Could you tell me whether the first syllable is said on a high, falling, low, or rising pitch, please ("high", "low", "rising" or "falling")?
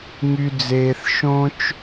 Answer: high